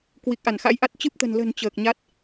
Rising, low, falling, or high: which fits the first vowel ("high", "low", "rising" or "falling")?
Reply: low